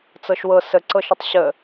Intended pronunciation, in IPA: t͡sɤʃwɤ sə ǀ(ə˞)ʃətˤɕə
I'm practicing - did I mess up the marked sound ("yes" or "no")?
yes